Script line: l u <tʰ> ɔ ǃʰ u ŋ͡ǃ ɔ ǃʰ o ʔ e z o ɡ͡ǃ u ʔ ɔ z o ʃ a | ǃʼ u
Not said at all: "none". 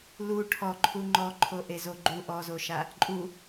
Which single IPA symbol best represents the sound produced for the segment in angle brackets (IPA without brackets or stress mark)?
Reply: ʈʰ